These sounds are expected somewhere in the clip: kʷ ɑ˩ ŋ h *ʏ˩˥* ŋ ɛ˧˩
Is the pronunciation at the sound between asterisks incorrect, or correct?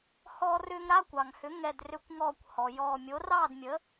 correct